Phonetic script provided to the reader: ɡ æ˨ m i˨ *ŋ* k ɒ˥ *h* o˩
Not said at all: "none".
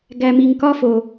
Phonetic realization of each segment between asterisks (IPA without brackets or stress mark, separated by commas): ŋ, f